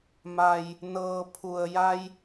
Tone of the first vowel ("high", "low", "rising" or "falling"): low